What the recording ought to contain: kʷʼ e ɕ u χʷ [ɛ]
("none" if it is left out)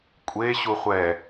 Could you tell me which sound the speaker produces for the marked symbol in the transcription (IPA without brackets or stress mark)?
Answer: ɛ